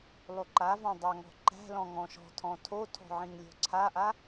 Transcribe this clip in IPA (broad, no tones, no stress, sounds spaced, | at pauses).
lˠ o ǃ a v ɔ̃ dˤ a ŋ ɔ̤ ǃ æ̤ l ɔ̃ ŋ ɔ̃ ʃ ɔ̤ tʰ ɔ̃ tʰ o tʰ ɔ̤ ʕ ĩ ŋ lʲ ɔ̤ ǀʰ a ʔ a